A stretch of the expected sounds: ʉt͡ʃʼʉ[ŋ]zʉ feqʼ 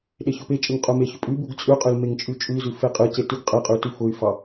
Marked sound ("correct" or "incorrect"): incorrect